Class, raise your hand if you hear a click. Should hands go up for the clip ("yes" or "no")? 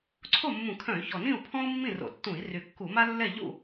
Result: yes